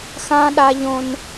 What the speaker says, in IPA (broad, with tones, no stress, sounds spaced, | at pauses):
x ã˦ ɗ a˦ ʎ õ˦ n